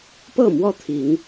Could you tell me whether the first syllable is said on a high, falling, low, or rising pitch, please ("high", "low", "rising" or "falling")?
falling